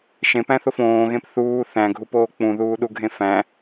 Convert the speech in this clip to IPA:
ʃ ẽ p æ̃ θ o f õː ɣ ẽ p θ uː θ æ̃ ɡʱ u p oː k͡p ũ ð uː ɗ u ɡʱ ẽ f æ̃

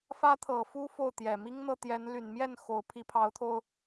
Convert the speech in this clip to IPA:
f ä˥ t̪ʰ ɤ˨˩ f u˥ f o˥˩ ʊ̯ t̪ j ɛ˨˩ m i˥ ŋ n̪ ɤ˥˩ t̪ j ɛ˧˥ n l y˨˩ n m j ɛ˥˩ n x o˧˥ ʊ̯ pʰ i˧˥ pʰ ɑ˧˥ ʊ̯ t̪ʰ o˧ ʊ̯

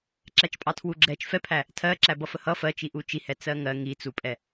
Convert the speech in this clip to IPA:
ǁ æ t͡ʃ pʼ ɑ tʰ w u ɡ͡ǁ ɛ t͡ʃ f ɛ pʰ æ | tʰ ɜ ǁ æ b ʌ f ə h ʌ f ɜ t͡ʃ i ʔ u t͡ʃ i h ɛ t͡s ɜ ŋ ɜ ŋ i t͡s u pʼ ɛ

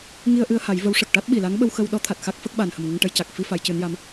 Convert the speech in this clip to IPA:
ŋ i˧ ə̯ ʔ ɨ˧ ə̯ h a˨˩˦ j v ə˧˥ w ʂ ə˨˩ k̚ ʈ a˦˥ t̚ ɓ i˨˩ l a˧˥ ŋ ɓ ə˧ w x ə˧ w ɗ ɔ˧˥ t̪ʰ a˨˩ t̚ x a˦˥ k̚ f ə˦˥ k̚ ɓ a˨˩ n h ə˨˩ m ŋ ə˧ ŋ ʈ ə˧ j c a˨˩ k̚ f i˧ f a˧˥ j c ɨ˧˥ n j a˧˥ m

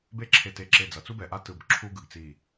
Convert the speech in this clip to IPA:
b e˦ ǁʰ e˧˩ t e˧˩ ǁ e˧˩ d͡z ʌ˩ t͡s u˦ b ɛ˩ ʔ a˦ t ɯ˧˩ b ǁʰ u˦ ɡ ɯ˩ ɡ t͡s i˧˩

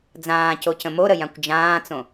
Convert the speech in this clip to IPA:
d͡z ãː c o c ə̃ m o ɾ ə j ã kʷ d͡ʒ ãː t͡s õ

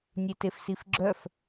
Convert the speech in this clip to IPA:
nʲ e t e f s i f ɡ͡ǁ œ f

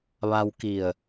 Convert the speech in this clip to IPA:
ʋ a˧ w k i˧˩ ə̯

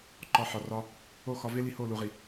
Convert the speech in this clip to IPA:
ǃ ɒ˧ ħ ɒ˨ r ɒ˧ | o˦˨ x ɒ˧ v e˦ l i˧ h o˦˨ l u˨ ʁ i˨

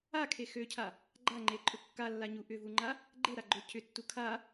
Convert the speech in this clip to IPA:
a kʰ e x ø cʰ a | ɡ͡ǃ a ŋ͡ǃ e ǃʼ ʊ kː a lː a ɲ u ʔ ʏ v u ŋ͡ǃ a | ɡ͡ǃ e ɾ a ɡ͡ǃ ʏ cʰ ʏ tː u kʰ a

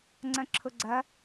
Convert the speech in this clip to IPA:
ŋ͡ǀ ɐ̃ ǁʰ ʊ ɡ͡ǀ ɐ

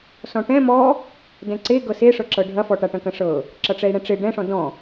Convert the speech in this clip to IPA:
s ɔ̃ ʈ ɛ̃ m ɔ | d ɛ̃ ǀ e ɡ ɤ s e ʂ ɤ ǁ ɤ ɖʱ ɐ f ɔ ʈ a ʈ ɐ̃ k ɐ̃ ʂ ɤ | ǁ ʌ ʈ͡ʂ ɛ i̯ ɽ ɛ̃ ʈ͡ʂ e ɖ ɛ̃ ʂ ɔ̃ d ɔ̃

